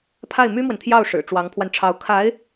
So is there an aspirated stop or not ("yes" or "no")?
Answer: yes